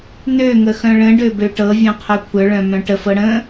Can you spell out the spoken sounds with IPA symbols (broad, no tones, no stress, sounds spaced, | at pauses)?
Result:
n ø ŋ ə x œ̃ ɭ ə̃ ɖ ø b ø ʈ ɤ vʲ œ̃ qʰ œ kʷʰ œ ɭ œ̃ m œ̃ ʈ ə f ɤ ɽ ə̃